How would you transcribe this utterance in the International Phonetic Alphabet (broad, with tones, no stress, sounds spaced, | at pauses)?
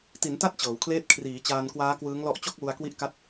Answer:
t i˩˦ n t a˦˥ t̚ t͡ɕ ɤː˩˦ w kʰ l eː˦˥ t̚ kʰ r iː˩˦ t͡ɕ aː˧ n k w aː˦˥ k w ɯː˦˥ ŋ l ɔ˦˥ ʔ t͡ɕ o˥˩ k̚ w u˧ a̯ k w i˦˥ ʔ k a˦˥ t̚